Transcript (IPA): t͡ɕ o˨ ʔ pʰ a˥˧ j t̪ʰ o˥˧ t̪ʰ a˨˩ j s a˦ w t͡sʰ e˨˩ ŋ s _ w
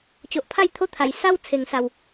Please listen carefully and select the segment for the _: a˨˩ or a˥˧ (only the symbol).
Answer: a˨˩